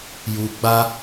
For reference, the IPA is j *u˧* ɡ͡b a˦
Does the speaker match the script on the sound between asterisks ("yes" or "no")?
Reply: yes